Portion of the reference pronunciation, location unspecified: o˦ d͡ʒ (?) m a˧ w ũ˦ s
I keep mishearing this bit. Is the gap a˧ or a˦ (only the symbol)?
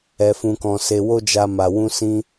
a˦